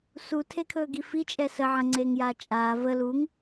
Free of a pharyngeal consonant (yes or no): no